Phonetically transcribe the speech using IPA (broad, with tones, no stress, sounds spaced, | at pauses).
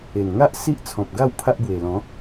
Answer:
e˨˩ n ŋ a˦ ʔ s i˦ ʔ t͡sʰ ɔ̃˨ p̚ ɡ a˥˧ w pʰ a˦ ʔ b w e˨˩ l ɔ̃˨˦